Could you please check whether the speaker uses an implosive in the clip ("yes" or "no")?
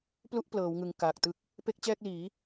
no